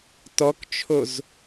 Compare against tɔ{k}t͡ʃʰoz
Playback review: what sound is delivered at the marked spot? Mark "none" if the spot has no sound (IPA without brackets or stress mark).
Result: k